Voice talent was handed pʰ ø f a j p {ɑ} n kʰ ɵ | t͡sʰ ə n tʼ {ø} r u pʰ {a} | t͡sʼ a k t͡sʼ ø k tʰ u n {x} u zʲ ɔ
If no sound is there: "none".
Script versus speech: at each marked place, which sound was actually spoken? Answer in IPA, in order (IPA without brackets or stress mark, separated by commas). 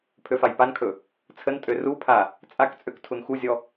a, ø, a, x